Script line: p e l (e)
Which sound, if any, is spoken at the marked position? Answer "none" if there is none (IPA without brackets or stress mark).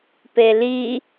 i